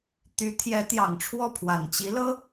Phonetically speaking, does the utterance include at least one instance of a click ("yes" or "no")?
no